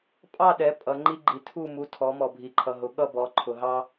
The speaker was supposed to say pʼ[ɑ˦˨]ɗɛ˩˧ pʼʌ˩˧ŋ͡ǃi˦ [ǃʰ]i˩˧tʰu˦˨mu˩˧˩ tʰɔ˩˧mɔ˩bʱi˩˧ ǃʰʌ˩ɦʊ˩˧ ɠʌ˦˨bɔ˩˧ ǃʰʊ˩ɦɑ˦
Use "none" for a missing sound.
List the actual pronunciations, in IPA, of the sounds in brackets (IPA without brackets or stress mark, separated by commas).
ɑ˦˨, ɡ͡ǃ